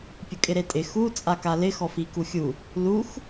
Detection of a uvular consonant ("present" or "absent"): absent